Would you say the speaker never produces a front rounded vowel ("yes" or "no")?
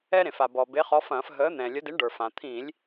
yes